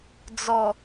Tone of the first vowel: low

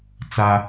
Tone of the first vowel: high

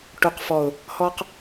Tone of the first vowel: low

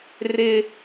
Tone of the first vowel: high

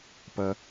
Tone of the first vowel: low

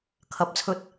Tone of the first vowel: rising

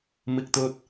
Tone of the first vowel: high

